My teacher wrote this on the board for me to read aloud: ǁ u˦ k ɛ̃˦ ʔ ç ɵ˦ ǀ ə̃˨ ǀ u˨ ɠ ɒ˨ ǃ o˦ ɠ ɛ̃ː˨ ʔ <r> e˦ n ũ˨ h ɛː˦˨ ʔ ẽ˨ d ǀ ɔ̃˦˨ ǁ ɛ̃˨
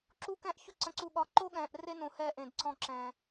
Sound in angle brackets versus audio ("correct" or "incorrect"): correct